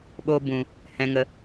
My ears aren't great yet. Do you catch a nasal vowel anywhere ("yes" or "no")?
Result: yes